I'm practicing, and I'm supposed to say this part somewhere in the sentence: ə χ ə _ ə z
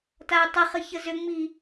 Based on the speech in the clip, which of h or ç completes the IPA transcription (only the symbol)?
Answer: ç